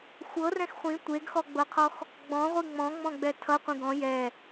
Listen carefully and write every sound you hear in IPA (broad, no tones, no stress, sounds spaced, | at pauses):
xʷ ɤ r ɛ̃ x χʷ ĩ tʷ e ɡ x ɔ ɡ͡b ɤ qʰ ɔ x | ɡ͡b ɔ̃ ʁʷ i ŋ͡m ɔ̃ ŋ͡m ɔ̃ ɡ͡b ɛ tʰ ʌ qʷ ĩ ɡ ɔ̃ j ɛ